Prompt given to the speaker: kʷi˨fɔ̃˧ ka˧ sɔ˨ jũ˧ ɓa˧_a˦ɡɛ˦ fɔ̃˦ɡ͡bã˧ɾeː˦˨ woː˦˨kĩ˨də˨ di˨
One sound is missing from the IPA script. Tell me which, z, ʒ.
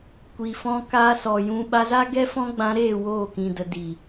z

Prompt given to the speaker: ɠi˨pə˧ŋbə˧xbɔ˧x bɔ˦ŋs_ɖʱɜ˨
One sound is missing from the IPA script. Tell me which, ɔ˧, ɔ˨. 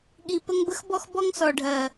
ɔ˨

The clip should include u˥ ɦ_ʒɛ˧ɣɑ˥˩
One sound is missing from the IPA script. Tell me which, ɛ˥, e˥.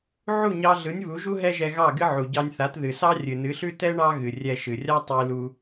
ɛ˥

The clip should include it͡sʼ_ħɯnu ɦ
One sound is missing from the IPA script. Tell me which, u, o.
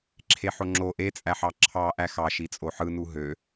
o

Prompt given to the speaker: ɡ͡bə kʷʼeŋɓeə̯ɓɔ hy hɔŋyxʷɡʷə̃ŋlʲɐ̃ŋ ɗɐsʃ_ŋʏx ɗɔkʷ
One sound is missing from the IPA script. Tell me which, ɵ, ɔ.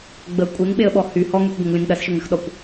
ɵ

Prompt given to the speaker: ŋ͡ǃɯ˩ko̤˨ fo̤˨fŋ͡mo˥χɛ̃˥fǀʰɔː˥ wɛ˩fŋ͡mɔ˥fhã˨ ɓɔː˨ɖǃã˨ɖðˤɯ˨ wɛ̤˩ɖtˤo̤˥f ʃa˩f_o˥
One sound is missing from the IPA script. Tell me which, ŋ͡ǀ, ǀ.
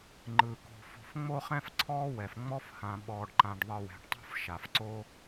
ǀ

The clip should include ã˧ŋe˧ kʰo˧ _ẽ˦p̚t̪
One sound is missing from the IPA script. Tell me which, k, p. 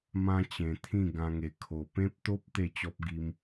p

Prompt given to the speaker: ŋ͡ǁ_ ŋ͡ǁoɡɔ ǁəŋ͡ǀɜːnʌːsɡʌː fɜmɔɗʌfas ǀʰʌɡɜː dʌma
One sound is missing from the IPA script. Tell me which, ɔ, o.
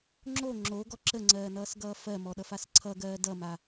o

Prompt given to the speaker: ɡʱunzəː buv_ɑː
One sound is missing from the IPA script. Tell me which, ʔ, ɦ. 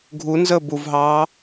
ɦ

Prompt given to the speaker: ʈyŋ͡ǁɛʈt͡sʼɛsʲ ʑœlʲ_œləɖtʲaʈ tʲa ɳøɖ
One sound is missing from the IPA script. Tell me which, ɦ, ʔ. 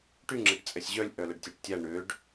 ʔ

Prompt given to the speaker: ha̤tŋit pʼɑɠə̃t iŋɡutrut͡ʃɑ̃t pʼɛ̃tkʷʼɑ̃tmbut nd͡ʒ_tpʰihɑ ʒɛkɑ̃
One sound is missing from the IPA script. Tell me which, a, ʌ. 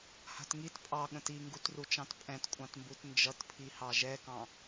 ʌ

